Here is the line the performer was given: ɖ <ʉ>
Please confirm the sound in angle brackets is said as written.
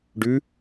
yes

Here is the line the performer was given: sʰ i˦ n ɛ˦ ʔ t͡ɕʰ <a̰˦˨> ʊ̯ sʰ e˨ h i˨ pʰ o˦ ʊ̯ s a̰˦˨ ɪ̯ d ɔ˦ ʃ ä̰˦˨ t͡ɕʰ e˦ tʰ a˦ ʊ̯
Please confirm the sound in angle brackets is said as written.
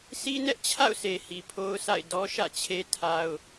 yes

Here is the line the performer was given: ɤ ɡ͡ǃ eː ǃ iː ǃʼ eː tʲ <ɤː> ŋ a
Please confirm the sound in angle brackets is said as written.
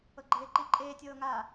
yes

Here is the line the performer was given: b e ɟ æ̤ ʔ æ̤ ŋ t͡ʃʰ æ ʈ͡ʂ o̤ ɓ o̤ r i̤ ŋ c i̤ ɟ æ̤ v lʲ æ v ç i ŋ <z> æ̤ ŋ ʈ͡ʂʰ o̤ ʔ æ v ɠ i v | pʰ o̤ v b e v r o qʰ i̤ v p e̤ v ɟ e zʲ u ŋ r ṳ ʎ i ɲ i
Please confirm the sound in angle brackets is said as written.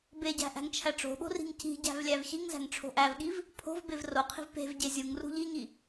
yes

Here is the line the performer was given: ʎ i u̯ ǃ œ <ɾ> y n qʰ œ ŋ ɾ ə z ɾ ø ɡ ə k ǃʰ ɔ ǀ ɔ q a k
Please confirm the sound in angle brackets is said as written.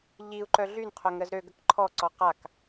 no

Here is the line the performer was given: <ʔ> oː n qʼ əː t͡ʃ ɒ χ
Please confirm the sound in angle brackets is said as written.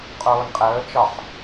no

